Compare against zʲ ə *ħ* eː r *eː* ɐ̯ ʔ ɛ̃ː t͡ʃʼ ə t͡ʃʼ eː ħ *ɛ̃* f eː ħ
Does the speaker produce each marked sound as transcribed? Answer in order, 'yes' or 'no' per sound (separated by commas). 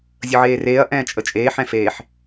no, yes, yes